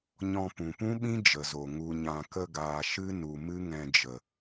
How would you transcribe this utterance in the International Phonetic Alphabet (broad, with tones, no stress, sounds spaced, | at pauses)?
ɲ ɔ̃˧ p ũ˨ p ũ˦ ɓ ĩ˦ d͡ʒ ə˨ z o˨ ŋ u˨ ɲ ã˨ k ə˧ ɡ aː˨ ʃ ɨ˦ n u˨ m ɨ˦ ŋ ɛ̃˧ d͡ʒ ə˨